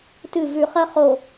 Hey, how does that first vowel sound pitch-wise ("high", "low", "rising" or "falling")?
falling